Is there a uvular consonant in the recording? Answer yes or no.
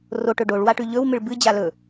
no